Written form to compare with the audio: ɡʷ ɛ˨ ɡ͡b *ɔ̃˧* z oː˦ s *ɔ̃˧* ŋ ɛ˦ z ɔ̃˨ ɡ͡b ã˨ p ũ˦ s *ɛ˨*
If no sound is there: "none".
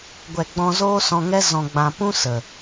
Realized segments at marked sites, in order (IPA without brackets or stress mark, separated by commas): ɔ̃˧, ɔ̃˧, ə˨